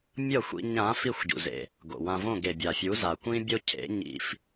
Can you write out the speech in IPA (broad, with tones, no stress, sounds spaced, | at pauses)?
mʲ ʌ˥˩ xʷ ḭ˧ ɲ ã˩˥ f i˥˩ xʷ ɟ ṵ˩ z ḛ˩ | ɡ o̰˩ w ã˧ v õ˥˩ ɡ e˩ bʲ a˩ fʲ u˩˥ z a˩ kʷ ĩ˥ bʲ o˥ cʰ ḛ˩˥ ɲ ḭ˧ f